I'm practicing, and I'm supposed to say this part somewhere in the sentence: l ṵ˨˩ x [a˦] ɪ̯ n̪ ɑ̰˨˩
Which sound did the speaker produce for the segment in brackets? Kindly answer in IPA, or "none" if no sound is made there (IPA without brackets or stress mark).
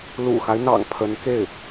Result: a˦